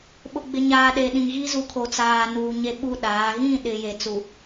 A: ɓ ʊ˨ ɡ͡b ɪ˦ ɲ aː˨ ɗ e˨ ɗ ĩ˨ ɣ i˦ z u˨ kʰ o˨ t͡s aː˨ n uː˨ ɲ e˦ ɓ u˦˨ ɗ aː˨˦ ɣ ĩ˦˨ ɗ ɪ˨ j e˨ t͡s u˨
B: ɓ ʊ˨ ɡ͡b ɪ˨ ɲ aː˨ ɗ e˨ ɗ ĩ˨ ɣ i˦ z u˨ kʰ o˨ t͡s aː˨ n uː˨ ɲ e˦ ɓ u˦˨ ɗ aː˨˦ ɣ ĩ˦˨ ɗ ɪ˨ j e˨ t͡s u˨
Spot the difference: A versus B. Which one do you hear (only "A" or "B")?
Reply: B